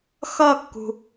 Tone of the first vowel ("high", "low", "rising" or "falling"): falling